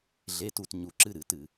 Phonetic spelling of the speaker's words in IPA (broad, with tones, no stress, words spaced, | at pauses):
ɮe˧˥˧tu˥˨t ɲu˧˩˧ǁɨ˧˥˧ɾɨ˧˩˧tɨ˧˩˧